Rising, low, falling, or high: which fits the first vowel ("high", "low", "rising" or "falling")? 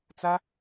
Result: high